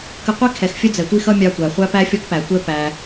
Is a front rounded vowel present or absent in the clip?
absent